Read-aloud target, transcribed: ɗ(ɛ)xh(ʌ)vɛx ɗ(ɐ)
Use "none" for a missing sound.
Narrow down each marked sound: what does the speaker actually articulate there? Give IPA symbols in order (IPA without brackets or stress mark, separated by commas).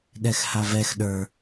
ɛ, a, ə˞